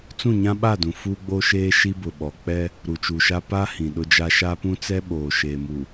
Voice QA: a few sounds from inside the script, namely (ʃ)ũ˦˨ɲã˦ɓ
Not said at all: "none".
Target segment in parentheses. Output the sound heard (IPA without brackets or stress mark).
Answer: t͡s